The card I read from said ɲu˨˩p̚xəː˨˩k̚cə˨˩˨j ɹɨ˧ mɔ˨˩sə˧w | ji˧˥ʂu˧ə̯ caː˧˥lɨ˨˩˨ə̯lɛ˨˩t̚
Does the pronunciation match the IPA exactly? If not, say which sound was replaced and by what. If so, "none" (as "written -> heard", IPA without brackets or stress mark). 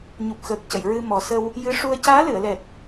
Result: i˧˥ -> ɨ˧˥